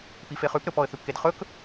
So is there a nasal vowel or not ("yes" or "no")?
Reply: no